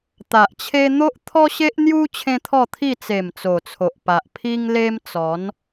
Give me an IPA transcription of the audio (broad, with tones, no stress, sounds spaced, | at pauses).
t̪ a˨ ʔ t͡ɕʰ e˦ n̪ o˦ ʔ t̪ʰ ɔ˦ ɕ e˦ ʔ n̪ j u˦ t͡ɕʰ ẽ˦ t̪ʰ ɔ˥˧ t̪ʰ i˥˧ t͡s e˨˩ m t͡s o˨˩ t͡sʰ o˨ ʔ p a˨ ʔ pʰ i˦ ŋ l e˦ m t͡s ɔ˨˦ n